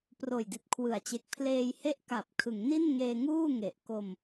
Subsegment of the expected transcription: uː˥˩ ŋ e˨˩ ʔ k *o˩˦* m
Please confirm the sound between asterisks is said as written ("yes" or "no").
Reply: no